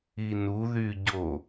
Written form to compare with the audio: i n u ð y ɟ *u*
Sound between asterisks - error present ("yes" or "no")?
yes